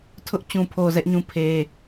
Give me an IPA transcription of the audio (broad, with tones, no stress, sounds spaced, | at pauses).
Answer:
tʰ ʊ˦ ʔ t͡ɕ ũ˨ pʰ o˨ z ɛ˦ ʔ ɲ ũ˦ pʰ e˦